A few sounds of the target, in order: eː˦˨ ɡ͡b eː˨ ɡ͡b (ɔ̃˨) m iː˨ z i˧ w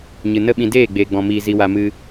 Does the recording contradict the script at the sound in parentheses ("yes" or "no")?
no